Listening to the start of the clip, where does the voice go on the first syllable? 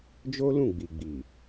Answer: high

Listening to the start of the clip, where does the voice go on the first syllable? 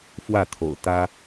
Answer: falling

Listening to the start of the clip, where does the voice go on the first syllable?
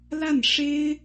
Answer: falling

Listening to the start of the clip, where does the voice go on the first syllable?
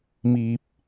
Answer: low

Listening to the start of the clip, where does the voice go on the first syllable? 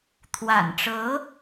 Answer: low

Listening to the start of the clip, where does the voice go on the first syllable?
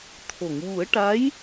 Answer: low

